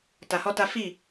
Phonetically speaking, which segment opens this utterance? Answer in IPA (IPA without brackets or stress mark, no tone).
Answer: t